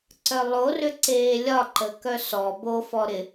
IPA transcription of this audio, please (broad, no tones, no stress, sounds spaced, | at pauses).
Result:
ǀ œ lˠ o r ʏ ǀ eː lʲ ɒ ǃ ə k œ s ɔ b o f ɔ ɾ ɪ